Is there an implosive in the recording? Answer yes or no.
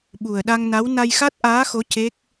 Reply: yes